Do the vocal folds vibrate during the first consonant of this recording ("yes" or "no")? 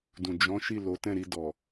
yes